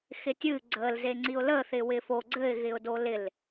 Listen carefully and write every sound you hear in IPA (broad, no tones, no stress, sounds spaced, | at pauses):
x ɪ tʲ ɨ ɡ͡ǀ ə l z e ŋ͡ǀ i ʊ̯ l ə θ ɪ w ɪ f o ɡ͡ǀ ɘ ɪ̯ ɣ ɪ ʊ̯ d o l ɪ l